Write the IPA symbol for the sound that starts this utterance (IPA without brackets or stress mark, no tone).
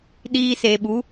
ɗ